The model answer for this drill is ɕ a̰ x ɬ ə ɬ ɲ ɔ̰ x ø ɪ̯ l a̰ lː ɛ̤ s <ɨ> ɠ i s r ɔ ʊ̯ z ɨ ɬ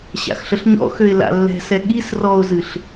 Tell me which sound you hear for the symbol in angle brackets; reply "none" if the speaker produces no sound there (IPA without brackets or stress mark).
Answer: ɛ